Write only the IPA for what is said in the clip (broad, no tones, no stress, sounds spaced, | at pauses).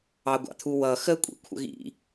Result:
ɑ ɡʷ ɑ̰ t̪ʰ u w ʌ x ə kʷʼ ḭ kʷʰ ə̰ ɣ ḭ